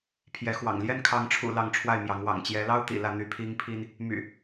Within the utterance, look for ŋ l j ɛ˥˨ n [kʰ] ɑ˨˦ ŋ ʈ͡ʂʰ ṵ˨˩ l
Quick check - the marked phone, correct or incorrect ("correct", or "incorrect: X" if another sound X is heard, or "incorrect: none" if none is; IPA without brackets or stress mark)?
correct